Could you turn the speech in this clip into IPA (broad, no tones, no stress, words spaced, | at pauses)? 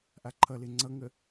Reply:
ʔaǃʰʌle ŋ͡ǀʌŋə